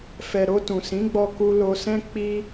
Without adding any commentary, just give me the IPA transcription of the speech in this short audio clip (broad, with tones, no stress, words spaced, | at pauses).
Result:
fɛ˨ɾo˧ tũ˨sĩ˨˦ɡ͡bɔ˧ ku˧lo˧sɛ̃˦ k͡pi˦